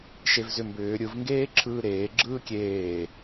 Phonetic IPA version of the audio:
ʃ e v z ʏ m b ʏː ɾʲ ɯ v ŋ ɡ eː ǁʰ ɯː ɾ eː ɡ͡ǁ ɯː kʲ eː

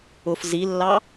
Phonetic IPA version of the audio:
ʊ f z i lː ɑ

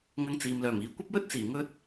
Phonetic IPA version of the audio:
ŋ ɐ˧ ŋ t͡s iː˨ m l œː˨˩ m iː˨ kʷ ɐ˥ p̚ w ɵ˥ t̚ t͡s iː˨˩ ŋ ɵ˥ t̚

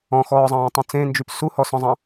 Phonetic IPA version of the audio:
ɔ̃ x ɔː zˤ ɑ̃ː tˤ ũ t͡s ẽ n d͡ʒ y p s u h ɔ s ɔ̃ zˤ ɑ̃

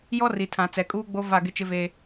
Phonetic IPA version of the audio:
j ɔ˦ r i˨ tʰ ã˨ t͡s ɛ˨ kʼ uː˦ ɡ͡b o˦ v a˦˨ ɡ ɪ˦ t͡ʃ ɪ˦ v eː˦

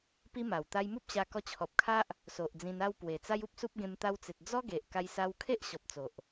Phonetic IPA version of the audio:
p i˦ m a˨˩ w t̪ a˧ j m u˦ p̚ ɕ a˧ k ɔ˧ t͡ɕʰ ɔ˨ p̚ kʰ a˦ ʔ | s o˨ ʔ d͡z ĩ˧ n a˥˧ w p w e˨˩ t͡s a˦ j u˦ p̚ s u˦ p̚ ɡ ẽ˧ m t̪ a˧ w t͡s e˨ t̚ d͡z ɔ˦ ɡ e˨ ʔ k a˧ j s a˧ w kʰ e˦ ʔ ɕ ɔ˨ p̚ t͡s o˨ ʔ

